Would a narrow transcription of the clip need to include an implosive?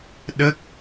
yes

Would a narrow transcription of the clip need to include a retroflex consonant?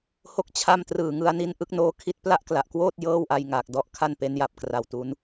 no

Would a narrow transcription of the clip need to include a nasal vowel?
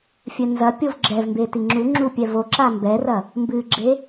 no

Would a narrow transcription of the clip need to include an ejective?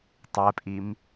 yes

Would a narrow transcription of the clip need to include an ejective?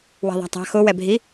no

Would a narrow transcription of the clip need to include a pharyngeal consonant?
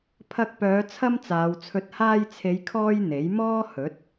no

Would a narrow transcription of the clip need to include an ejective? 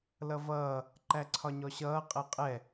yes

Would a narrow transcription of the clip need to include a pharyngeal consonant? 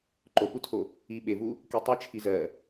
no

